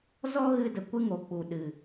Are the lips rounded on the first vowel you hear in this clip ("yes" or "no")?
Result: yes